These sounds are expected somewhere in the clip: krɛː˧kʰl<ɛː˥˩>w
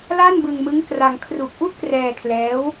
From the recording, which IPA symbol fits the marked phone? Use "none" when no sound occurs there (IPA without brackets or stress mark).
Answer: ɛː˦˥